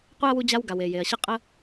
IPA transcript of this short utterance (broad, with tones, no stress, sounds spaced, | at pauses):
qʷ e˥ ɐ̯ w u˦ d͡ʑ a˦ w ɡ a˩ w e˩ j e˩ ɐ̯ ɕ ə˥ qʼ ə˦